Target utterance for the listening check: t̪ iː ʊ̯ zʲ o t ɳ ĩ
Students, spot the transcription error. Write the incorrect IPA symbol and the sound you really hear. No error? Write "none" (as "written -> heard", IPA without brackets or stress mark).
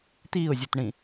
none